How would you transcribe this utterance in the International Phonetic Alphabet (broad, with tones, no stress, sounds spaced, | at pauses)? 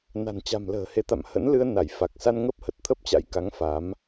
n a̤˨˩ n t͡ɕ a̤˨˩ m l ə̤ː˨˩ h e˨˦ t̪ a̰˧˨ m h ə̰˧˥ n l ɨ˧ ə̯ n a˧˩ j f a˨˩ k̚ s a˧ n ŋ ə˦˥ p̚ h ə˨˩ t̚ t̪ʰ ə˦˥ p̚ t͡ɕ a̰˧˥ j k a˨˦ ŋ f a˨˦ m